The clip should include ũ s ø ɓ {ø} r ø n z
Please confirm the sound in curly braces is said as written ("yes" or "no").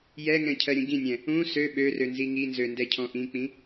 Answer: yes